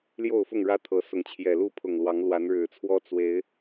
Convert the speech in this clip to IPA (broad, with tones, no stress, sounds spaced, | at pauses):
l j o˥˨ ʊ̯ f ʊ˥˨ ŋ ɻ ä˦ t̪ʰ ɤ˨˦ s ʊ˨˦ ŋ t͡ɕʰ j ɛ˨˩ l u˥˨ pʰ ʊ˨˩ ŋ l w ɑ˨˦ ŋ l w a˨˦ n ɻ ɻ̩˨˩ t͡sʰ w ɔ˦ t͡s w e˨˦ ɪ̯